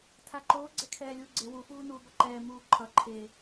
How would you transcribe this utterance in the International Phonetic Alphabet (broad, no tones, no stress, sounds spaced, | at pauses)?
tʰ a ǃ oː ɡ͡ǀ ɛ kʰ ɛː lʲ uː ɡ͡ǀ e w u f uː n uː b ʌ ǃ ɛː m uː ǃʰ ʌ ǃʰ e